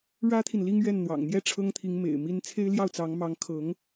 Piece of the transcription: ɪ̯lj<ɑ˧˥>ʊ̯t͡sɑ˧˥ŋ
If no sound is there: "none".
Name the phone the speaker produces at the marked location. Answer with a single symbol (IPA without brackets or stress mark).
ɑ˥˩